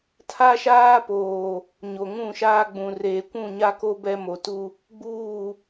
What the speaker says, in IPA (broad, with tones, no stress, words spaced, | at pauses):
tʰa˦ʃaː˦poː˨ | ɲo˨ŋũ˦˨ʃaː˦ɡ͡bũ˨ reː˨kʷũ˦˨ɲa˦ko˦ bɛ˦mo˨tu˦ | ɡ͡buː˦˨